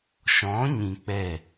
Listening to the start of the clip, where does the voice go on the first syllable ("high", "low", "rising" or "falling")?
rising